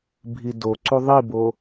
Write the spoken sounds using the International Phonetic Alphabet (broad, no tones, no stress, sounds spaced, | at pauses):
bʱ i d o ǀ u ðˤ i b o